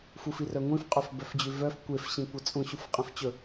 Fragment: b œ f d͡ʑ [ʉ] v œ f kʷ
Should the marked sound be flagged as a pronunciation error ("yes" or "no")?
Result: no